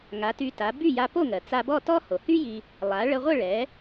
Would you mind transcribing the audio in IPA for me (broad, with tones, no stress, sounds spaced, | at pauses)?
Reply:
ŋ a˩˥ t y˧ t a˩˥ b y˥˩ j a˧ p o˥˩ ŋ ɜ˩ t͡s a˧ b ɔ˥˩ t ɔ˥ h o˩ h y˥ j i˧ | lˠ a˩˥ ɭ ə˧ ʁʷ ə˥˩ ɭ ɛ˩˥